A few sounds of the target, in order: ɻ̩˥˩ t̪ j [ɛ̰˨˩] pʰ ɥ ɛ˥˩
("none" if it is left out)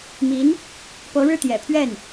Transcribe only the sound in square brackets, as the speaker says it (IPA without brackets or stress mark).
ɛ̰˨˩